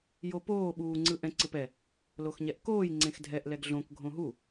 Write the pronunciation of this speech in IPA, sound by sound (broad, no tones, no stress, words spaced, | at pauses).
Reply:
jopoː ɓuːŋ͡ǀɯʔɛ̃ ǀɯpɛ | loxɲɛʔkoːj ŋ͡ǀẽxdʱɛʔ lɛɡɮõk ɡʱõɦu